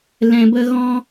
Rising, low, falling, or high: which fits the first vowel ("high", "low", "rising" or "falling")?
high